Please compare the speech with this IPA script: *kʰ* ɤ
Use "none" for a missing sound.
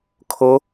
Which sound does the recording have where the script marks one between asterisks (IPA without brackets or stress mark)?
kʰ